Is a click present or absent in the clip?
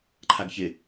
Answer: present